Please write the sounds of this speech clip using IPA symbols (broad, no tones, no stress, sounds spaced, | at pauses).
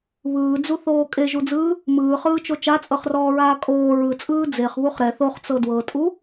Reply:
β ɯː d͡z u θ oː kʼ e ʒ u d͡z ɯː | m ɯː χ ɯː t͡ʃ o t͡ʃ a t͡sʼ ɤ χ r ɔː ɹ aː kʼ oː ɹ ɯ t͡sʼ ɯː d͡z e χ β u χ ɾ ɛ θ o χ t͡s ɤ d w ɤ tʼ u